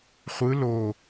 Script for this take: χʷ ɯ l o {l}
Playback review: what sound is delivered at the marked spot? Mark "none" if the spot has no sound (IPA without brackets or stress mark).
none